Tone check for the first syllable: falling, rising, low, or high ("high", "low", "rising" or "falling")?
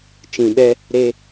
low